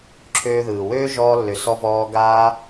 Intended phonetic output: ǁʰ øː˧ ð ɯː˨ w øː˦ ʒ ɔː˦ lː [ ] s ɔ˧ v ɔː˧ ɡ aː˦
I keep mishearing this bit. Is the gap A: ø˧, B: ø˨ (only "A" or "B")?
A